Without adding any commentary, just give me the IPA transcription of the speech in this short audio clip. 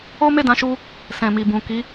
o˦ m e˦˨ d ã˨˦ ʃ u˧ | s ɛ̃˨ m i˨ b ũ˨ k i˨˦

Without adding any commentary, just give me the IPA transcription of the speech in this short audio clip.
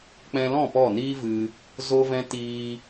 k͡p ɛ̃˧ l ɔ̃˦˨ p ɔ˦˨ n iː˦ v ɨ˧ | z o˧ v ɛ̃˧ t iː˧

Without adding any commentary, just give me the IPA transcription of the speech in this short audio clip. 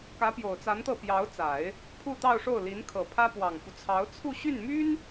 k ä˧˥ p j o˨˩ ʊ̯ t͡s a˧˥ n t̪ ɤ˥˩ p j ɑ˧˥ ʊ̯ t͡s a˨˩˦ ɪ̯ | pʰ u˥˧ t̪ ɑ˥˧ ʊ̯ ʂ o˥˩ ʊ̯ l i˧˥ n kʰ ɤ˨˩ pʰ ä˥ p w ɑ˨˩ ŋ f u˦ t͡sʰ ɑ˧˥ ʊ̯ t͡sʰ u˥˧ ɕ y˥˩ n m y˥ n

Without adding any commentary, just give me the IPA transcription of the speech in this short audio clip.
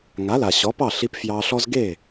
ŋ a˩˥ l a˩ ɕ ɔ˩˥ p ɑ˥˩ ɬ i˧ p f j ɑ˧ ɬ ɔ˥ z ɡ e˥˩

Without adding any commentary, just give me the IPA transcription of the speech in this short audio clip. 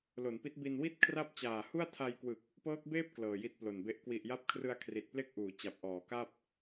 l o˩˦ n p i˦˥ t̚ b i˧ n w i˥˩ t̚ kʰ r a˥˩ p̚ t͡ɕ aː˨˩ h u˥˩ a̯ tʰ a˧ j k w ɯ˨˩ k̚ | p ɤː˦˥ k̚ b eː˥˩ p̚ k l ɤː˨˩ j i˦˥ t̚ p l o˨˩ n b e˦˥ ʔ k w i˨˩ ʔ j a˦˥ p̚ kʰ r ɯ˧ a̯ kʰ r i˨˩ t̚ p l e˥˩ k̚ ʔ uː˩˦ t͡ɕ a˨˩ p̚ ʔ ɔː˩˦ k a˥˩ p̚

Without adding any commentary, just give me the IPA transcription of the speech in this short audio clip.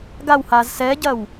ɡ a w h a z s ɛ ɟ ɐ w

